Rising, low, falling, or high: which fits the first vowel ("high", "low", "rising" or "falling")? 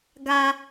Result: high